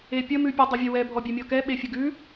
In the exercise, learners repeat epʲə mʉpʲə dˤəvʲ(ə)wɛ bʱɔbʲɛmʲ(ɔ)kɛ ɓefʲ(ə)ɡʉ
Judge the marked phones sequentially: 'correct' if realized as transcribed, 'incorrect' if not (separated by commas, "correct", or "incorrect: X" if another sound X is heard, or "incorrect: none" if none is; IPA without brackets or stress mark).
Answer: correct, correct, correct